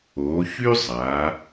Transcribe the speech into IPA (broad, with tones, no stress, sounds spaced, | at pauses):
o˩˧ ç y˥ zˤ aː˩˧